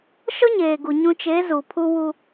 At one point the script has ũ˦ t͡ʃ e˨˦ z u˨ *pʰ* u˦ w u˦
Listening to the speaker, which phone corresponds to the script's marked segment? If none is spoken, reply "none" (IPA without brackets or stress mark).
pʰ